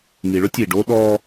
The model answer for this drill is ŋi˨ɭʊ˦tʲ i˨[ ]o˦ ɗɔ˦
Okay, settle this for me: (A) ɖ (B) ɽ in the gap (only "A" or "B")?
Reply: A